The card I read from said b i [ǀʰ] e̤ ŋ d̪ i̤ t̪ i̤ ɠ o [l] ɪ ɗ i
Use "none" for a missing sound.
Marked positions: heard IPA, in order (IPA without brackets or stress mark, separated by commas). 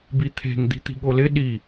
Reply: t̪ʰ, l